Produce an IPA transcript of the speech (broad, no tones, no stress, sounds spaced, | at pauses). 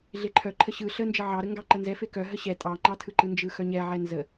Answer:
ɮ e ǃʰ œ ǃʰ ə ɕ ɯ ɬ ə n d͡ʒ ə ʕ ɑ ɾ ə ŋ ɡ ɑ ǃ ə n z ɛ f e k œ ɦ ə ɕ ɛ tʼ ɑ ŋ͡ǃ ɑ tʰ ɯ ǃ ɯ n d͡ʒ ɯ x œ ɲ ɛ ʕ ɛ n z ə